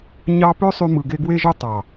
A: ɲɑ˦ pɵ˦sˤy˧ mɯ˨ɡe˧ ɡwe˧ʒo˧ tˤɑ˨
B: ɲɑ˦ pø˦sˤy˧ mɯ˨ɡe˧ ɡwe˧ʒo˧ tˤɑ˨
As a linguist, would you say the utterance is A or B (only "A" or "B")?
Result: B